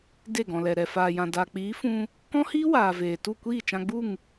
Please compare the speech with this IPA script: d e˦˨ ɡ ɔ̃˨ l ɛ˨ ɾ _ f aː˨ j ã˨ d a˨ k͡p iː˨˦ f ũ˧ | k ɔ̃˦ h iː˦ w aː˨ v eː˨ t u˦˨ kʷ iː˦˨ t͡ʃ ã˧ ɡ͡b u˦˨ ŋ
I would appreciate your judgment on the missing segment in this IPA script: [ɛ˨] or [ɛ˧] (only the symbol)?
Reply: ɛ˨